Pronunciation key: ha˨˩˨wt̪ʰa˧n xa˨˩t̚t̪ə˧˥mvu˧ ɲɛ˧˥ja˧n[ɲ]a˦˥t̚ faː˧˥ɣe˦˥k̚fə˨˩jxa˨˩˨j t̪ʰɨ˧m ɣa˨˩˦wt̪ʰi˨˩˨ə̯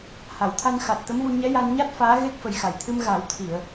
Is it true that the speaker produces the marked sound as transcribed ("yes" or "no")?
yes